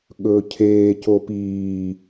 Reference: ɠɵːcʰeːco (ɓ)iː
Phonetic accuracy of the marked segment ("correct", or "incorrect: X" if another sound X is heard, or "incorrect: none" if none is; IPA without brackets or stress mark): incorrect: p